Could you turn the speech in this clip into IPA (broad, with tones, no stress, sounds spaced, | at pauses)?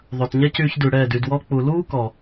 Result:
ðˤ œ˨ t ɲ ɛ˦ c yː˧ ç d ʉ˨ ɽ ɛː˦˨ d y˧ d w ɔ˦ k͡p u˨ l uː˦ k ɔ˨